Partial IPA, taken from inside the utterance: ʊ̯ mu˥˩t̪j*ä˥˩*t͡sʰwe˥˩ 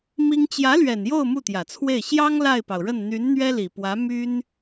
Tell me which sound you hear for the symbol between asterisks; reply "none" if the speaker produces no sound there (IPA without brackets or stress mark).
ä˨˩